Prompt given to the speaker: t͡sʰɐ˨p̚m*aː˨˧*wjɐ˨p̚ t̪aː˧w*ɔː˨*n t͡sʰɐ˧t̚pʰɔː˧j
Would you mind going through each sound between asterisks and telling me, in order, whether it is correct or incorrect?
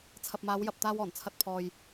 correct, incorrect

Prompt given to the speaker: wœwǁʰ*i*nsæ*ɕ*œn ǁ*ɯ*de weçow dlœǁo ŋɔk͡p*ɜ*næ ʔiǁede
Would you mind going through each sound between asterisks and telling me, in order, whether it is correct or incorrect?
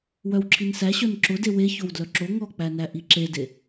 correct, correct, incorrect, incorrect

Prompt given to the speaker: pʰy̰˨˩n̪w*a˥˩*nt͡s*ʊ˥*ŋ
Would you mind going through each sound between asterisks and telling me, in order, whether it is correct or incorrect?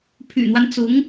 incorrect, incorrect

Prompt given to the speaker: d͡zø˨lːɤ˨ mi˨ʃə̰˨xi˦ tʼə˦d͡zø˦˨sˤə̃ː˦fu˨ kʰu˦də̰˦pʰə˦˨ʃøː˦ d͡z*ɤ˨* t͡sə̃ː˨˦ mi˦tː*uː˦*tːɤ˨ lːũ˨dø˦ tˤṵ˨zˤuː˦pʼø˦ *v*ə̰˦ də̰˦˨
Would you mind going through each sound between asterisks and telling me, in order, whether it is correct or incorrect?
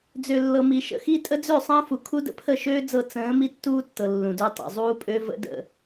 incorrect, correct, correct

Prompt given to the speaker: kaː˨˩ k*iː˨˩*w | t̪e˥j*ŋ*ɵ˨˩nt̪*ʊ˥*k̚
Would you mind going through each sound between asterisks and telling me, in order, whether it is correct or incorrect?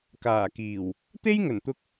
correct, correct, incorrect

